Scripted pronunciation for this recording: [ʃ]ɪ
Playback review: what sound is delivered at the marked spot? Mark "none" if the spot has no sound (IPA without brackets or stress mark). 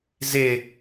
z